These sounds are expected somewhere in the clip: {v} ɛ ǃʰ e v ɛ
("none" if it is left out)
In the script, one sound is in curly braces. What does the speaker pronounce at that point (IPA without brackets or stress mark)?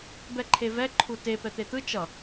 b